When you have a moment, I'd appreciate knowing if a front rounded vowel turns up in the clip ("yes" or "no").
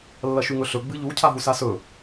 no